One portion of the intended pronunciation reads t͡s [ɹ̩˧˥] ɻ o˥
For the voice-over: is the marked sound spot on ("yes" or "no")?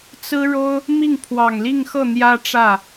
no